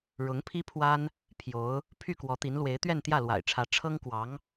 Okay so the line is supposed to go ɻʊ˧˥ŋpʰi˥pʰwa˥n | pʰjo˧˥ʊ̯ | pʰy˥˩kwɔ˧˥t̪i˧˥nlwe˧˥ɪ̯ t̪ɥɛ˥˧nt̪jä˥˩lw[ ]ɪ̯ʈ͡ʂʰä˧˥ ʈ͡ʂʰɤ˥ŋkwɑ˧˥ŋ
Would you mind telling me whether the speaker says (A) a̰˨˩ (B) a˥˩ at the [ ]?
A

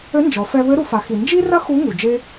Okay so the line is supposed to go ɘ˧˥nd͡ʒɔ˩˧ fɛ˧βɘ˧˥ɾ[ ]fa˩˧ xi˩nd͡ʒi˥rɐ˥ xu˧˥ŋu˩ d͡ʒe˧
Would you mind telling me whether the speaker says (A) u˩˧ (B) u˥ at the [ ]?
A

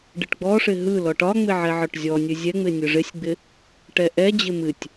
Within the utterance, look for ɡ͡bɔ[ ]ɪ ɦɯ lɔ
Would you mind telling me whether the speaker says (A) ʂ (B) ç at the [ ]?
A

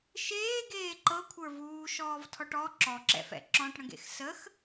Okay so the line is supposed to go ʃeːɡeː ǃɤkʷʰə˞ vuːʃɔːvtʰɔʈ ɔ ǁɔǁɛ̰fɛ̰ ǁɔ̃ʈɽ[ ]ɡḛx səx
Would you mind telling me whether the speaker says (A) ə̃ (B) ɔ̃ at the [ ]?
A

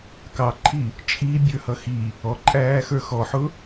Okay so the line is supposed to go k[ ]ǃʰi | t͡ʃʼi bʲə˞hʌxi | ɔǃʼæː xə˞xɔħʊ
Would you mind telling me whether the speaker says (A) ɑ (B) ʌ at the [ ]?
A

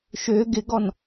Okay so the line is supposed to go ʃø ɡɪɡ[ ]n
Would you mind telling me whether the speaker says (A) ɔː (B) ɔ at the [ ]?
B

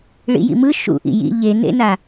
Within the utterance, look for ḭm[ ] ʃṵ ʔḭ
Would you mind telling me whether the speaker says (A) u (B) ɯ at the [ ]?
B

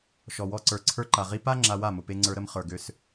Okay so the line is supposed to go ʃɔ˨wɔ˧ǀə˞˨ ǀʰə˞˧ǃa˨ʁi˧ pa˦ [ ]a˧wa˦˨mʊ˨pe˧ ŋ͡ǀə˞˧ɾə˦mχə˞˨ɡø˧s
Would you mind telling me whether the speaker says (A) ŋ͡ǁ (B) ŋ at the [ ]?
A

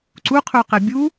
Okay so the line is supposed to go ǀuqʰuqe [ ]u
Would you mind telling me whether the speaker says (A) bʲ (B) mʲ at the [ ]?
A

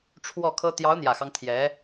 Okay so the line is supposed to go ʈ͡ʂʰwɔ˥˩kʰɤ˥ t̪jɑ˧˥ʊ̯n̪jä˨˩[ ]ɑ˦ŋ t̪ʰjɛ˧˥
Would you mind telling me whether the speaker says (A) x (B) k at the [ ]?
A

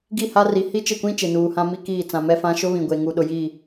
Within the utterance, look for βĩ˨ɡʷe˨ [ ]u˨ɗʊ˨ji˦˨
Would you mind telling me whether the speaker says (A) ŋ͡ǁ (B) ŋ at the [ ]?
B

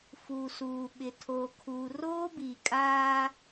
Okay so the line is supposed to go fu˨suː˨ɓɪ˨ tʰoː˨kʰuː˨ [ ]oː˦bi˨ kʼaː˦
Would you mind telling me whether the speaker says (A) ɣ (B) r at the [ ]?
B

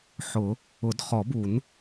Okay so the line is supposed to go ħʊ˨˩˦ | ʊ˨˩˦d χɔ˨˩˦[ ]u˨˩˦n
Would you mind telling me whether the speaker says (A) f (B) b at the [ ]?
B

